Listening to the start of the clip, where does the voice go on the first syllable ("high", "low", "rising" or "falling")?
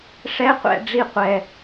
high